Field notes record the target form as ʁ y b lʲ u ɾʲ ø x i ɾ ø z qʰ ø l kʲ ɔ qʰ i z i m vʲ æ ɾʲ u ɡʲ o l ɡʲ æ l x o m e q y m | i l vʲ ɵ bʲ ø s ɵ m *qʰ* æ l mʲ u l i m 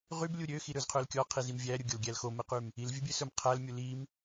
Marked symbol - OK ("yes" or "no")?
yes